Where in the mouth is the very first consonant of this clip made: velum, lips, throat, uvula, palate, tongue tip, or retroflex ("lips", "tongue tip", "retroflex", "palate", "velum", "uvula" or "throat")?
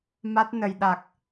lips